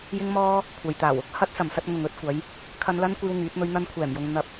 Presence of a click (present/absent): absent